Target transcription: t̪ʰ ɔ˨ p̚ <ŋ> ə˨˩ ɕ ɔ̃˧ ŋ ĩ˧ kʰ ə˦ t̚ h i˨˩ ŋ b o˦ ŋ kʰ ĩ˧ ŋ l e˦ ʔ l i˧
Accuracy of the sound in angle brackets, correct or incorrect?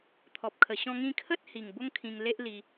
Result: incorrect: kʰ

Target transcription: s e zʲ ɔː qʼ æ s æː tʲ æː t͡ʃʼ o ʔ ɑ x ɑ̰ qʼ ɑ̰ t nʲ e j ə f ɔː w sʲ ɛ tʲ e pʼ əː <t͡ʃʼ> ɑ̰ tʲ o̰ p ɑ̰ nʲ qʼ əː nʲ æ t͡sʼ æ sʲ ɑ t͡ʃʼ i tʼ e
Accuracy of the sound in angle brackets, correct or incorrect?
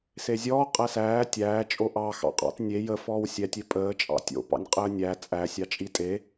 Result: correct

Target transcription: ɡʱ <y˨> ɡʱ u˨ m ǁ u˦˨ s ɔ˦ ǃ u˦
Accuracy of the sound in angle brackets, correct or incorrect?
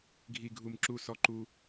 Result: incorrect: i˨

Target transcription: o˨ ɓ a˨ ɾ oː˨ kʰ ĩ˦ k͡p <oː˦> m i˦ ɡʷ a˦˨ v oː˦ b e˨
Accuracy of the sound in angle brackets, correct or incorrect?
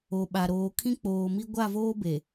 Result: incorrect: oː˨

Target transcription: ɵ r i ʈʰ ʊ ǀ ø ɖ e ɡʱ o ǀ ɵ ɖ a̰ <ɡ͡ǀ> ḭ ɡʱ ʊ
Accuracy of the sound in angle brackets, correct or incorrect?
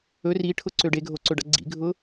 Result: correct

